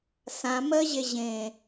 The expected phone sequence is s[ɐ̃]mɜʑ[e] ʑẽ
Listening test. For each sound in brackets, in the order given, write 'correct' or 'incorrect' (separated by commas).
incorrect, correct